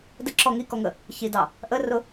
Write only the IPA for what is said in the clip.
dəǁɔ ŋikɔŋə | çidɑ | ʔərʊ

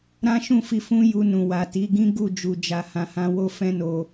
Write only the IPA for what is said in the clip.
ɾã˦ʃũ˦˨fi˧ fũ˦ju˧ nũ˨wa˨ti˨˦ɡĩ˦ ɡu˦˨ d͡ʒu˧d͡ʒa˧ hã˧hã˦ wo˦fɛ̃˦no˧

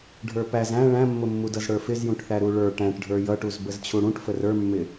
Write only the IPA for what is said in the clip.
ɖʱə˞pæz æ̃ ɭæ̃mːʊmːudʌz ɽə˞fɪzjũʈθæ ɾuɭə˞ ʈæ̃ʈɖʱə˞ jʌʈuz bəzt͡ɕʰuɽũʈ fərə˞mːɪ

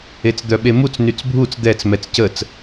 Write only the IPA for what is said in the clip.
et͡sd̪œɓemut͡s nyt͡sbʱut͡s d̪ɛt͡s mɛt͡scət͡s

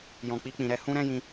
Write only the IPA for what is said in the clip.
jɔ̃˨k͡pi˧ k͡pĩ˨ɾɛ˧ hũ˦ɾɛ̃˦ jĩ˧

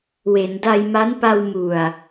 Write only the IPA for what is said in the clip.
we˩˦nda˧jma˦˥npa˧w mu˨˩a̯

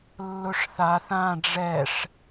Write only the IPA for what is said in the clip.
lːʊʂθaθ ã ɖ͡ʐɛʂ

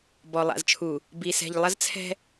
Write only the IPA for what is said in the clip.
bɔ˨lˠa̰˨zt͡ʃʰu˨ | bi˨sɛ̤˨ʎ lˠɐ˦zt͡sʰɛ̤˦

